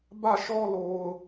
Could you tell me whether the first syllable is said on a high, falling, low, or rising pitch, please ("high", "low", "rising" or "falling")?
falling